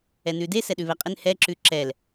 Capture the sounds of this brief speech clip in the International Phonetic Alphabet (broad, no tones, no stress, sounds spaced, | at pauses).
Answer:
ɛ n ʉ d e s ɛ ɗ ʉ β ɛ qʼ ɪ n h ɛ ǁ ʉ ǁ ɛ l